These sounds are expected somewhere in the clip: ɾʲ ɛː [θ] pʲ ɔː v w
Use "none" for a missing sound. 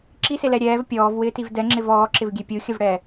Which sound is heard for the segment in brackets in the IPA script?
v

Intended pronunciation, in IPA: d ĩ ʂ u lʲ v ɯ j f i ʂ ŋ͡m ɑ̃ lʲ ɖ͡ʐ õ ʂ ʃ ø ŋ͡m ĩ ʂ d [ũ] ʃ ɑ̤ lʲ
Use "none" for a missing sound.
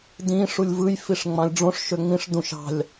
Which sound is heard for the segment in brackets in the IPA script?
ũ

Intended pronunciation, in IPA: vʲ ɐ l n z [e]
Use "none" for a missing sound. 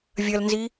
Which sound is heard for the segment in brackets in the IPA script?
i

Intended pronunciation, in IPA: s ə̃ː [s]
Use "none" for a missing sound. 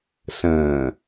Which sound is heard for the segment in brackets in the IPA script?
none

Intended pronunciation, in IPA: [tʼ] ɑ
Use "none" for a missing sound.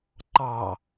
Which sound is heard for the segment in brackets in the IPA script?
ǃ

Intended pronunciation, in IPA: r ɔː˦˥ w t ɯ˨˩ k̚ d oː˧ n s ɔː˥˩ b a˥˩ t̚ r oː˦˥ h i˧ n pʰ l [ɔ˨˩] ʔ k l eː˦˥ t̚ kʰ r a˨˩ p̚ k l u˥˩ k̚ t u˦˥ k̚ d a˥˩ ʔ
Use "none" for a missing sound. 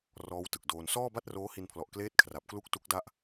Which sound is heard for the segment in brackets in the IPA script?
ɔ˨˩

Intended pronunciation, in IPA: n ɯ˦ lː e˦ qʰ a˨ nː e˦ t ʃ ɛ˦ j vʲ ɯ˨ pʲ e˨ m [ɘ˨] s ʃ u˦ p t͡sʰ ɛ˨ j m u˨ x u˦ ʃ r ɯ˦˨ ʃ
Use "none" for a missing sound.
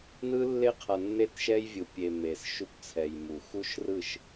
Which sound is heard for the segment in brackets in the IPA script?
e˨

